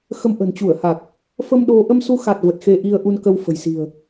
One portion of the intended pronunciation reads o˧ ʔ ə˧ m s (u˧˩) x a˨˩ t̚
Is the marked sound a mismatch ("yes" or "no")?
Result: yes